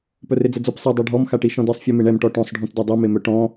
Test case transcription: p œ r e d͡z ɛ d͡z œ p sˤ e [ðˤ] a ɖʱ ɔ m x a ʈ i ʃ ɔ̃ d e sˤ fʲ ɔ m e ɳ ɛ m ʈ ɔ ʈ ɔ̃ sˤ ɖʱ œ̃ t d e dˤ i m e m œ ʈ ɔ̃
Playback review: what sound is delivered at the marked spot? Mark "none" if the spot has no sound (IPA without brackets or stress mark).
dˤ